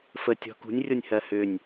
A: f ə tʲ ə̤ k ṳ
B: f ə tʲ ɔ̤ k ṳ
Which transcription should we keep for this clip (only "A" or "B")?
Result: B